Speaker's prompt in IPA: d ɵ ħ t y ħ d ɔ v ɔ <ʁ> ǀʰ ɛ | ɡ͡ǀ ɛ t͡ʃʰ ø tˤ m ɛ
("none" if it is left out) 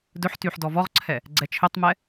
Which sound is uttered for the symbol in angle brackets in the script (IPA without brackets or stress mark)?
ʁ